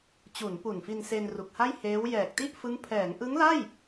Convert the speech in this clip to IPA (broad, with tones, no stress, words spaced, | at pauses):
t͡ɕu˩˦npu˨˩nfi˧n se˧nru˨˩k̚ha˥˩jheː˦˥w jɛː˨˩k̚ti˥˩ʔfɯ˦˥ŋ pʰɛː˩˦ŋʔɯ˦˥ŋla˥˩j